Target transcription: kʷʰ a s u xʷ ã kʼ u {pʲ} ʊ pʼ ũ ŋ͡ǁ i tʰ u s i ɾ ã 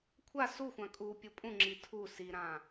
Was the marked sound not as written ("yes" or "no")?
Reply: no